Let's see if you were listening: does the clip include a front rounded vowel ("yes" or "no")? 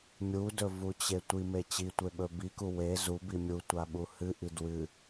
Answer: no